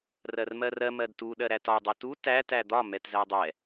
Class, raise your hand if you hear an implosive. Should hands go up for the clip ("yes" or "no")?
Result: yes